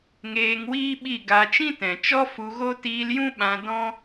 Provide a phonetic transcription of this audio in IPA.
ŋ eː˧ ŋ w iː˦ ɓ i˦˨ ɡ a˧ t͡ʃ ĩ˦ t ɛ̃˨ t͡ʃ ɔ˦ f u˧ ɣ o˦ t iː˧ l j ũ˦ ɓ ã˧ d ɔ̃˦

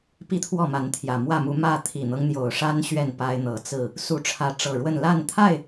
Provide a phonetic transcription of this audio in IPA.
p i˥˨ t̪ʰ w ɔ˥˨ m a˨˦ n t̪ʰ j ä˨˩ m w ä˥˨ m u˨˦ m ä˥˨ t̪ʰ i˨˩ n̪ ɤ˦ ŋ n̪ j o˨˩ ʊ̯ ʂ a˦ n ɕ ɥ ɛ˥˨ n p a˦ ɪ̯ n̪ ɤ˨˦ t͡s ɹ̩˥˨ | s u˨˦ ʈ͡ʂʰ ä˨˦ ʈ͡ʂ ɤ˨˩ ɻ w ə˥˨ n l a˥˨ n t̪ʰ a˥˨ ɪ̯

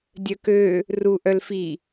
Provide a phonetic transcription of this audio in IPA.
dʲ œ k ø | r u ʔ œ l f i

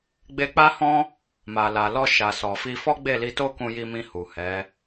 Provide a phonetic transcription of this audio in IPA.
ɡ͡b e˧ k͡p a˦ h ɔ̃˦ | m a˨ l a˨ l ɔ˧ ʃ a˨ s ɔ˨ f i˧ f ɔ˦ ɡ͡b e˦˨ l i˧ t o˦ k ũ˧ j i˧ m ĩ˧ h u˨ h ɛ˨˦

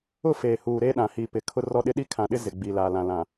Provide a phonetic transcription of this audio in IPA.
ʊ˦˨ f eː˨ h uː˨ ɾ e˦ ɗ ã˨ h i˨ p ɪ˨ kʰ ʊ˦ r ɔ˦ ɗ ɪ˦ ɗ i˦ kʰ ã˨ ɗ ɪ˦ z ɪ˨ ɡ͡b i˨ l a˨ l ã˨ l ã˨

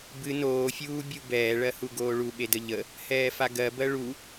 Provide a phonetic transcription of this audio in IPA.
b ɨ n oː fʲ uː bʲ u b ɛː ɭ ɜ h u ɡ oː ɭ u ɓ e d ə ʎ ə | h ɛː f a ɡ ɜ b ɜ ɭ u

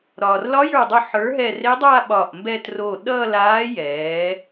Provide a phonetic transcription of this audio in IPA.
ɾ ɒː˩ r l ɒ˧˥ j ə˞˧˩ dˤ œ˧˩ ħ ə˞˩˥ ɦ ɛ˧˩ r e˧˥ dˤ aː˥˧ ɓ ɒː˧˩ ʔ m b ɛ˥˧ t r o˧˩ ɗ ʌ˥˧ l aː˧˥ j ɛː˩˥

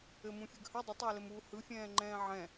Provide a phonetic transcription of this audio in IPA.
ɘ m ũ fʲ ɯ ɡ h ɘ dˤ ə tˤ ɘː l ɘ m uː h ɯ fʲ ɛ̃ː ŋ͡ǃ ɛ̃ː ʕ ɛ̃

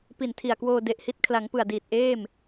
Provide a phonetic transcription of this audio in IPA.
p i˨˩ n tʰ i˨˩ a̯ k w oː˧ d e˨˩ ʔ h i˦˥ t̚ kʰ l a˩˦ ŋ p ɯ˨˩ a̯ d iː˨˩ t̚ ʔ eː˥˩ m

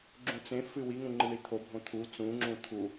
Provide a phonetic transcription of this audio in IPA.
ɡ͡ǁ ũ t͡s ẽ f ɨ w i ŋ ũ ŋ͡ǃ ɨ ɳ i t̪ʰ o bʱ õ t̪ʰ u t͡s ũ ŋ͡ǁ ũ t̪ʰ u

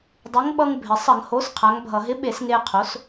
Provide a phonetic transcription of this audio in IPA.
dˤ ə˨˥ ŋ ɓ ʌ˦ ŋ bʱ ɪ˩ sˤ ə˧˩˧ ŋ h o˨˥ s qʰ a˨˥ ŋ bʱ ʌ˧˩˧ ɦ ɪ˨˥ ɓ e˧˩˧ s ŋ e˦ qʰ o˨˥ s

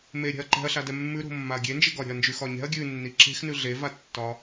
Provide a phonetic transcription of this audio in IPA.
m e ɾʲ ɛ̤ ɐ̯ ǃ ɛ̤ ɐ̯ ɬ a d ɛ mː ʉ ɾ o̤ mː a ɐ̯ ɡʲ e n d͡ʒ e ɡ ɒ ɾʲ ɛ̤ ɐ̯ n d͡ʒ ʉ x ɒ ɲ ɛ̤ ɐ̯ ɡʲ ʉ nː i ǁ e̤ x n ʉ ɮ e v a tː ɒ

